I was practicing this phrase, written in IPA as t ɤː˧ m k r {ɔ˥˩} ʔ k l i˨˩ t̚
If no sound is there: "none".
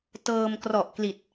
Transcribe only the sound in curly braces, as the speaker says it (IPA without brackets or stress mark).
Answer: ɔ˨˩